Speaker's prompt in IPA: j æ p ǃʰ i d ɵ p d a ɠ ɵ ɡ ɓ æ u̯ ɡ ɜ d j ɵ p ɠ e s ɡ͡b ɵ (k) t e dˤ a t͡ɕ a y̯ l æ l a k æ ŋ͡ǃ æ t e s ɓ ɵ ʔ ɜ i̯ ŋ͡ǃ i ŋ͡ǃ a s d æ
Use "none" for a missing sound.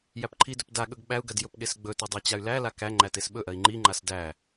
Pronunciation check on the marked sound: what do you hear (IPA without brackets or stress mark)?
none